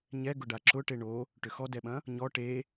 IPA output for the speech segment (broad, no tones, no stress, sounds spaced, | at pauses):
ɲ ɛ ɡ ʊ ɖ a ǁ ʊ ʈ e ɳ o | ʈ ʏ x ɔ d ɛ ɓ ɐ̃ | ɲ ɔ ʈ e